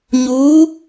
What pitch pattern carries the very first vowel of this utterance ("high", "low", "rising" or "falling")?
rising